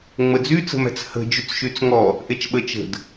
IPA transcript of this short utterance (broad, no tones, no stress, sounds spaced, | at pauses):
ŋ͡m ə d͡z y t͡s ə̤ m æ̤ t͡s h ə̤ d͡ʒ y t͡s ʃ y t͡s ŋ ɔ | ʔ e t͡ʃ ɓ ə t͡ʃ ə̤ d